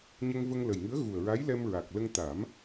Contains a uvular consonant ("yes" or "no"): no